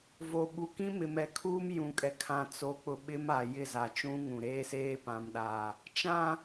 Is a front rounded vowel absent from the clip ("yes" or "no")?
yes